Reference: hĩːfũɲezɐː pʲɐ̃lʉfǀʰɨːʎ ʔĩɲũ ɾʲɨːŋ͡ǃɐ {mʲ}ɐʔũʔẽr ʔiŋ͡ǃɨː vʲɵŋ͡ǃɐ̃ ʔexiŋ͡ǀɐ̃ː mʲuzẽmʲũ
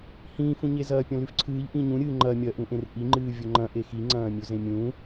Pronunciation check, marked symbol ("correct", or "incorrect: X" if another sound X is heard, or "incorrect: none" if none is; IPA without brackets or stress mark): correct